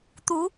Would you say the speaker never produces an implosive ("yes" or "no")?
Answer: yes